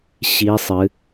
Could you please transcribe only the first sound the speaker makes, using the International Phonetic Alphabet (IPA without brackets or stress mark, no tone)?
ɕ